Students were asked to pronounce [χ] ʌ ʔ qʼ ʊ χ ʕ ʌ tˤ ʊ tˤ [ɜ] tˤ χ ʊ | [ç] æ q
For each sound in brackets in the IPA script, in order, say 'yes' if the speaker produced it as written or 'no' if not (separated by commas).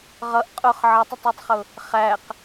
no, yes, no